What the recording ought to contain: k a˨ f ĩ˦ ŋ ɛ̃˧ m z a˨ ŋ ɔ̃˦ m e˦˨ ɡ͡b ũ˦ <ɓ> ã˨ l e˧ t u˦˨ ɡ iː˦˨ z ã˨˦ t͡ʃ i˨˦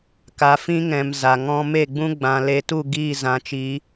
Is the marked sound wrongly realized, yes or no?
yes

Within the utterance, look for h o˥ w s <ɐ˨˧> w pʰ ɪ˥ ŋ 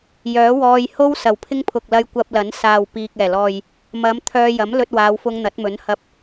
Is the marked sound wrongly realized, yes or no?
yes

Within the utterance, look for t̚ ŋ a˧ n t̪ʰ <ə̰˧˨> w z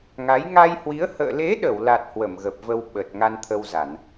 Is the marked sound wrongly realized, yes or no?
yes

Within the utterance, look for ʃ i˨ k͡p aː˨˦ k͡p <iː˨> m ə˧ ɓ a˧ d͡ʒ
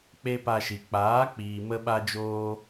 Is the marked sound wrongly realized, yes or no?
no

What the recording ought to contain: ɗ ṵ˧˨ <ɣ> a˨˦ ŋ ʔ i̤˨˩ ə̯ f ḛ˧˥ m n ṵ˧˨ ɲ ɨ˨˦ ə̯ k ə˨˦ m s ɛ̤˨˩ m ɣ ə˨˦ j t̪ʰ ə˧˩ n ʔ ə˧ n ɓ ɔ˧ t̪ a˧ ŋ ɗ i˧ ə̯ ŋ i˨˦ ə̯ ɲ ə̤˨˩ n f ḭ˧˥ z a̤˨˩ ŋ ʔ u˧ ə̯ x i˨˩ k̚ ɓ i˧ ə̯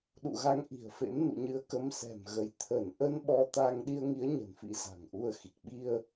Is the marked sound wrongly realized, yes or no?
no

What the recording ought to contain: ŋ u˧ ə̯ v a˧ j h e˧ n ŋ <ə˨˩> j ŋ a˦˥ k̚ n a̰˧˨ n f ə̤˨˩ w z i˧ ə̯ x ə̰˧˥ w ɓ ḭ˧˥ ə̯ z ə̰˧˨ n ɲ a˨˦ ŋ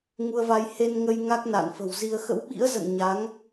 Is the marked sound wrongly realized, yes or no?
yes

